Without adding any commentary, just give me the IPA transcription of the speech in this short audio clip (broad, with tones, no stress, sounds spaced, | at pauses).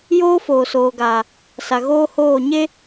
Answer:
j oː˦ f oː˨ s oː˨ ɡ aː˨ | s a˨ ɣ oː˦ h oː˦˨ ɲ e˦